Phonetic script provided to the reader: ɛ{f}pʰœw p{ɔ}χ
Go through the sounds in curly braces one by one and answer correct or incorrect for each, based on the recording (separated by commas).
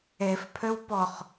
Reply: correct, correct